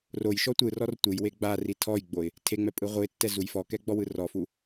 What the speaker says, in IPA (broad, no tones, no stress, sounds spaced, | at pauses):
r o j ʃ ɔ tʷ ɯ r ɔ r tʷ ɯ j w e ɡ͡b a r i tʰ ɔ j ɡ͡b o ɪ̯ | tʰ e ŋ͡m ɛ pʼ ɯ ʁʷ ɯ ɪ̯ tː ɛ z u j f ɔ k ɛ ɡ͡b ɔ w ɯ r ɔ f u